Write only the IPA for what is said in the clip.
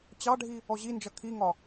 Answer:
t͡ɕ ɑ ɖʱ i | ɔ ʑ i n d͡ʒ ʌ kʰ i ŋ ɒ

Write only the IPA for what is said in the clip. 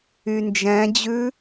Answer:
y n d͡ʒ ɛ̃ d͡ʑ ʉ

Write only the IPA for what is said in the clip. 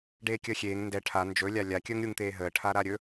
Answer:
ɖ eː kʲ əː xʲ eː ŋ n d ɛ ʈʰ a n d͡ʒ ɵ lʲ a lʲ a kʲ əː ŋ ɾʲ u ŋ t̪ eː ɦ əː ʈʰ a ɾ a ɾʲ ɵ

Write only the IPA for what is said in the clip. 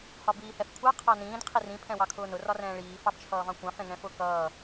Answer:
h ɒ b iː h ɛ f kʷʰ ɑ qʰ ɑ n ĩː d qʰ i r ĩ pʰ ɛ̃ w ɑ kʰ ʊː n ʊ r ɒ r ɛ̃ː ɭ iː f ɑ b t͡ʃʰ ʌː v ɑ̃ kʷ ɑ̃ f ɛ̃ ŋ ɛ̃ f ʊ k ʌː

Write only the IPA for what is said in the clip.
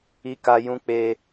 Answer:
i˧ k a˧ j ũ˧ k͡p e˧

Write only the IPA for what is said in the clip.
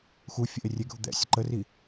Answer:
x u fʲ ə ʔ e rʲ e ɡʱ u d̪ ɛ̰ sʲ ə ǃ ə r i

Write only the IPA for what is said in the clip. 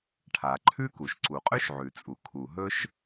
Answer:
ʈʰ a˩ ǃʰ ʉ˥ k u˩ ʃ ǀ u˩ qʼ ʉ˥ ʃ ʕ ʉ˩ t͡sʼ u˩ kʰ u˩ ɦ ɵ˥ ʃ

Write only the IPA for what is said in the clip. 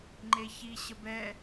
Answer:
ŋ͡ǃ e ç i ɕ ə b ɛ

